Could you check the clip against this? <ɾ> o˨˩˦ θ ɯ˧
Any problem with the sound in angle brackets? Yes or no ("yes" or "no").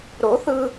no